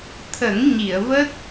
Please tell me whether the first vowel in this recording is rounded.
no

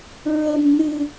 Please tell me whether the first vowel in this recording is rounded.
no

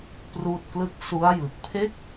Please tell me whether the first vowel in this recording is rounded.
yes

